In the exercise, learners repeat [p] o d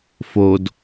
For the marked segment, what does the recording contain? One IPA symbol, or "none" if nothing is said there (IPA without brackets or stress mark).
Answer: f